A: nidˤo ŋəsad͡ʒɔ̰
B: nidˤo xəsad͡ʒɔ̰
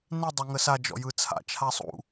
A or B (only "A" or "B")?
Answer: A